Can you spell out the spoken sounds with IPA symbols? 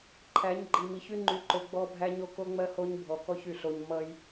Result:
ǃʰ æ˨˦ ɲ ɡ͡ǃ i˨ m i˨ ç y˦ ŋ͡ǃ y˨ ǃ o˨ ɡ͡b ɔ˦ bʱ æ˦ ɲ o˦ k o˦ ŋ͡m ɜ˦ h o˦ ɲ bʱ ɔ˨ k ɔ˦ ç y˨ ɬ o˦ ɲ m ʌ˦ j

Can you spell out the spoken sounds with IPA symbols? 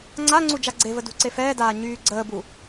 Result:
ŋ͡ǀ a ŋ͡ǀ u d͡ʒ a ɡ͡ǀ e v ə d ṳ ǀ e f ɛː d aː ɲ yː ɡ͡ǀ əː b u

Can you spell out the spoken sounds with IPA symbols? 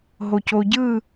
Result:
ɦ o c o ɟ ɯ

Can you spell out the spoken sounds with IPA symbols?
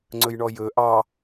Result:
ŋ͡ǀ ɵ j ɳ ɔ j ɵ ʔ ɑ

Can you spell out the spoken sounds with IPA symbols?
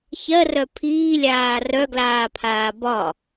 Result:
ç ɜ r œ pʰ iː lʲ aː r œ ɡ l aː pʰ aː b ɒ

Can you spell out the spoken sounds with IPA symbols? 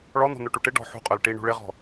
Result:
ɭ ɔ n̪ ɔ̤ n̪ œ ʈ u ʈ ɪ ɖ ɔ̤ ħ ṳ qʼ œ l ʈ i ɳ ṳ ɭ ɪ ʁ ɔ̤

